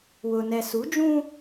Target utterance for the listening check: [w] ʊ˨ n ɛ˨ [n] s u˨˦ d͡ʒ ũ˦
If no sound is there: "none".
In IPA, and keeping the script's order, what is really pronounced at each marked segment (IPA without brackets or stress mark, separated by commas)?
w, none